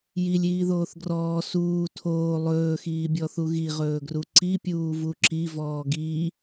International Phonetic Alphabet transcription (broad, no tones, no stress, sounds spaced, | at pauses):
j i lʲ iː ð oː θ ɡ r ɔː s uː tʰ oː lˠ ɵː x iː bʲ ɔ θ u ɣ i ʁ ɵː ɡ r u ǀ i pʲ uː v u ǁ i v ɔː ɡ i